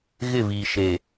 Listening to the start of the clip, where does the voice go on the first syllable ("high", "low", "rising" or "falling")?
falling